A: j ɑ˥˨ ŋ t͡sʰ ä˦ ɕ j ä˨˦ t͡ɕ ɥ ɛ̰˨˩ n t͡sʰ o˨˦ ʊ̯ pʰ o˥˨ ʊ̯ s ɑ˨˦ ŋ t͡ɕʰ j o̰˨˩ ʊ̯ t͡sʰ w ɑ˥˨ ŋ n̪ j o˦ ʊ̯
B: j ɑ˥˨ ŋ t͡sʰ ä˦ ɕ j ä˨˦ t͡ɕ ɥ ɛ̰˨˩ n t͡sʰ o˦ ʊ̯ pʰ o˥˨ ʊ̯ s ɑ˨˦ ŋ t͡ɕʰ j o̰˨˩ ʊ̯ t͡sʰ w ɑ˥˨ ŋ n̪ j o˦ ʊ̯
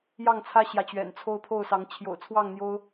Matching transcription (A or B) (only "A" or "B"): B